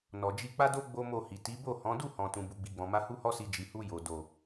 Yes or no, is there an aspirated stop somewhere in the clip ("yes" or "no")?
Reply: no